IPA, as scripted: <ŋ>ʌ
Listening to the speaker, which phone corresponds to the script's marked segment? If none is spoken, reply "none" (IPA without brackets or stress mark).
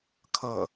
kʰ